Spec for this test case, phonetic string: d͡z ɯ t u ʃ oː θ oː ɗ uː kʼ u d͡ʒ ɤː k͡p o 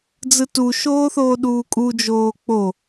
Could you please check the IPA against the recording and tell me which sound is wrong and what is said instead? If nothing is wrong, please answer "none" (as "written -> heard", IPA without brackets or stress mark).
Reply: ɤː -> oː